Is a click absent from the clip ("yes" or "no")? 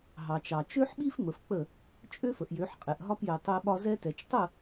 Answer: yes